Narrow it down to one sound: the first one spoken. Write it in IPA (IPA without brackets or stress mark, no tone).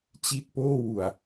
t͡ɕ